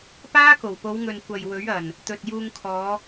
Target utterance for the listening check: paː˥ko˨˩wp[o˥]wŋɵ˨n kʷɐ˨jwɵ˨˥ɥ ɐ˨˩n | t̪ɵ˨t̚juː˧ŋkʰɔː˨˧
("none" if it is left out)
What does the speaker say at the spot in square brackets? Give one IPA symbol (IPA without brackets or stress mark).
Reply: o˨˧